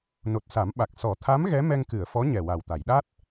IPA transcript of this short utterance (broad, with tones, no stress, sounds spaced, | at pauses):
n o˨˩ t̚ s a˨˩˦ m ɓ a˨˩ k̚ s ɔ˨˩˦ t̪ʰ a˧˥ m ɣ ɛ˧˥ m ɛ˧ ŋ k ɨ˨˩˨ ə̯ f ɔ˧˥ ɲ ɛ˨˩ w a˨˩ w t̪ a˨˩˨ j ɗ a˦˥ t̚